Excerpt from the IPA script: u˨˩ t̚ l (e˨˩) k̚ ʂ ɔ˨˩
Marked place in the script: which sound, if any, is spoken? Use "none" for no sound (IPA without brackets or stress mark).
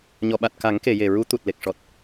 e˨˩